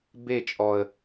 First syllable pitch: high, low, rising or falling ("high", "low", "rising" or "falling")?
falling